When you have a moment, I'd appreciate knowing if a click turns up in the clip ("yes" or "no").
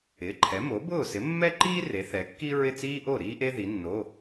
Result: yes